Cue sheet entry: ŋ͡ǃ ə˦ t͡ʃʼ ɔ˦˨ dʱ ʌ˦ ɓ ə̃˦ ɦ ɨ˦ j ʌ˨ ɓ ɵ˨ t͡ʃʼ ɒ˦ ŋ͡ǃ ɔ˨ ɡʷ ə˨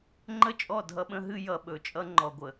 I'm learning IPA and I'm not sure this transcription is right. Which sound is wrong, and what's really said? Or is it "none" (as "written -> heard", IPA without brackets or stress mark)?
ɒ˦ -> ʌ˦